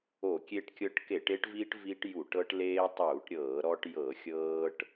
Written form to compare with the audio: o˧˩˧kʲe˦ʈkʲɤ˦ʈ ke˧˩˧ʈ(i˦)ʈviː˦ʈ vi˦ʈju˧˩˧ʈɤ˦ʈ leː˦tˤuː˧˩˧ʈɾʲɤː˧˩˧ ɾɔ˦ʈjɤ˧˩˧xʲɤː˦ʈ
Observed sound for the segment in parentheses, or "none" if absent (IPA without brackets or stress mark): e˦